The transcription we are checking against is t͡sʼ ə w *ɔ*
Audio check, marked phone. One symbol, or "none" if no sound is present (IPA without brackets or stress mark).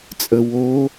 o